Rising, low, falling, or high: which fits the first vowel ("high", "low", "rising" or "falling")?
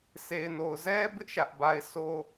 low